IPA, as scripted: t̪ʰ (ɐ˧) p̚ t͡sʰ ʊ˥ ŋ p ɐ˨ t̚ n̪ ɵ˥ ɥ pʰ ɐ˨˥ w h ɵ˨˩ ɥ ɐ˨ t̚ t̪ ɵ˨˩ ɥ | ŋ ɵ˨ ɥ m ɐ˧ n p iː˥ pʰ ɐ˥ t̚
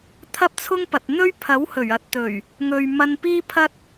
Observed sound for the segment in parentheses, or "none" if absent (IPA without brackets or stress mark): ɐ˥